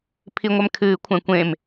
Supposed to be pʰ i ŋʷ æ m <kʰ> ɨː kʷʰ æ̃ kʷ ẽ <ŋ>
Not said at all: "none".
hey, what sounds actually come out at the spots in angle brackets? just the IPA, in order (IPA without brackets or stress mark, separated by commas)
kʰ, m